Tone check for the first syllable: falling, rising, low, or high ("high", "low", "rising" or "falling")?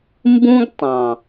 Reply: high